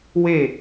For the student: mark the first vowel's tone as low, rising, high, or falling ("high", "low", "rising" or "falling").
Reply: falling